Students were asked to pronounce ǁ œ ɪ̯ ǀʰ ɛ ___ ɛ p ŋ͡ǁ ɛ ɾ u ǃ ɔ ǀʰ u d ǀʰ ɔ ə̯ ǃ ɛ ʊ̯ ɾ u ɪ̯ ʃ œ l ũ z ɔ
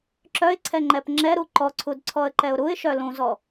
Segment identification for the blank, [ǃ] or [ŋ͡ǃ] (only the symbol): ŋ͡ǃ